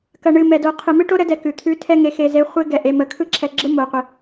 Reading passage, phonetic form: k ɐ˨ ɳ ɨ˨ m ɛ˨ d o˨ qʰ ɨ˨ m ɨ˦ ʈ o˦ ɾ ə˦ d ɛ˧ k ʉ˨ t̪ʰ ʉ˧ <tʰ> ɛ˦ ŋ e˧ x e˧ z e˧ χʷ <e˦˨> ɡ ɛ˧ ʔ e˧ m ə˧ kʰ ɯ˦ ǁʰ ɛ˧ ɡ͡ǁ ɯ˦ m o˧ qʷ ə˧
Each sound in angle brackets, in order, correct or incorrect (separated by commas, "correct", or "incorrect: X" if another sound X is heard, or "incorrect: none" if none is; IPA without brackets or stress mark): correct, incorrect: e˦